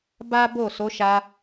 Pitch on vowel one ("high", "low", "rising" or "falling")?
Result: high